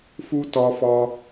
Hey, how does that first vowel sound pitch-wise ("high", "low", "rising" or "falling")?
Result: high